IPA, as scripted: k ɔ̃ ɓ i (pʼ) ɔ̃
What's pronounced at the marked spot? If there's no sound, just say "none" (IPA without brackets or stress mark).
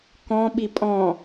pʼ